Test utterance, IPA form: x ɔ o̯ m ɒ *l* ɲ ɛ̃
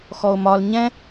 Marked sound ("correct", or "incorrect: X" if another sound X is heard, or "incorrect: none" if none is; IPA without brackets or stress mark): correct